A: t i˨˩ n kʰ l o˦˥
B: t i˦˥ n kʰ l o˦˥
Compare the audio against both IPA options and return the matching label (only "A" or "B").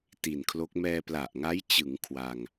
A